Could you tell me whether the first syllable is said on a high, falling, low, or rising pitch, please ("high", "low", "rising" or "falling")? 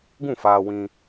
falling